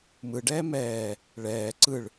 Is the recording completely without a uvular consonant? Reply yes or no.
yes